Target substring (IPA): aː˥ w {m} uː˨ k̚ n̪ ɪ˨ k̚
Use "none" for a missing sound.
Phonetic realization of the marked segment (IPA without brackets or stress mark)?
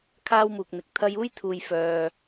m